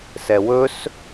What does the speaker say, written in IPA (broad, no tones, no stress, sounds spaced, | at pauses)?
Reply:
s ɛ w ɵ s